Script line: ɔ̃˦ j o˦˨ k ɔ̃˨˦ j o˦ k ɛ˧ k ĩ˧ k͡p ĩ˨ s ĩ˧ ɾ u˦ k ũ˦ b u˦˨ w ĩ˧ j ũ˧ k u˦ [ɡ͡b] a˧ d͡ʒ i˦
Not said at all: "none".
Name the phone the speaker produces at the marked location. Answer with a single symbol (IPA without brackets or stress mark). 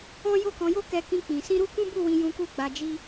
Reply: ɡ͡b